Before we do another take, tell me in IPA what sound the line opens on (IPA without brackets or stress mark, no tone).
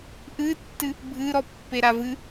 ʔ